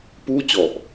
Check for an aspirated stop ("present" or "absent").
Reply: absent